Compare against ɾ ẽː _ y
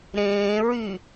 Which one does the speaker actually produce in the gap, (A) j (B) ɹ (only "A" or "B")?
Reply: B